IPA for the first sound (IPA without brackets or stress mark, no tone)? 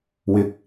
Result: w